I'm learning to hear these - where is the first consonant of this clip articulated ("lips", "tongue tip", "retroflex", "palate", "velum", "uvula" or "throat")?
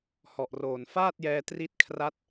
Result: throat